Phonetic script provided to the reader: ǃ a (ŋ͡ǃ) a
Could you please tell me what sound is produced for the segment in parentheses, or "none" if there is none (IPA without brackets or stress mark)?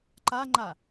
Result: ŋ͡ǃ